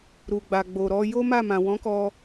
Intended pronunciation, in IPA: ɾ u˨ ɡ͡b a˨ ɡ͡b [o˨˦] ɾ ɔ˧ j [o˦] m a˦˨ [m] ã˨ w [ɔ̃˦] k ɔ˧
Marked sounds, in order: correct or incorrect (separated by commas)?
incorrect, correct, correct, incorrect